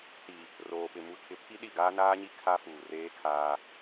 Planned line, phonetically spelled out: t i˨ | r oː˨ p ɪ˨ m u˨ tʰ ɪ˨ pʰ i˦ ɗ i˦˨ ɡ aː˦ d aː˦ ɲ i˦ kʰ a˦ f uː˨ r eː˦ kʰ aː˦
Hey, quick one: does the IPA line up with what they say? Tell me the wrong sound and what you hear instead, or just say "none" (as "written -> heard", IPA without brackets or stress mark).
d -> n